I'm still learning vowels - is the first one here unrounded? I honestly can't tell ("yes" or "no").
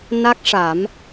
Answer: yes